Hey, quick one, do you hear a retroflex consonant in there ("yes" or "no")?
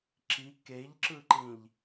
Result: no